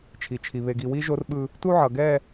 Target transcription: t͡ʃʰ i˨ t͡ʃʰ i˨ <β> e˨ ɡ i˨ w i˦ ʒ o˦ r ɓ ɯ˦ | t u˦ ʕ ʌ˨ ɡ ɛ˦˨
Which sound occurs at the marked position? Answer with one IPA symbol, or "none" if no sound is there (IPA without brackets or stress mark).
β